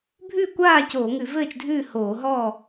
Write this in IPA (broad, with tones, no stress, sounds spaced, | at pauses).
bʱ ʉː˥˨ kʷ aː˥˨ c oː˧˩˧ ŋ ʉ˧˩˧ v ɘː˥˨ t͡ʃ dʱ ʉː˥˨ h oː˧˩˧ ɦ ɔː˥˨